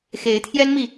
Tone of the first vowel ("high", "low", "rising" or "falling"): rising